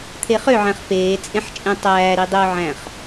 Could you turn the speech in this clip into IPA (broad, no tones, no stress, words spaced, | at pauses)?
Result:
t̪ʰeχøʕæ̃χ peːt͡sʼẽħ t͡ʃʼẽtˤæːɾi dˤø ʕæ̃χ